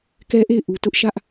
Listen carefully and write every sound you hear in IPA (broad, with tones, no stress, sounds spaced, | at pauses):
k ɛ˦ ʔ e˦˨ ɪ̯ ʔ u˨ t ʊ˦ ʔ ʃ ä˦ ʔ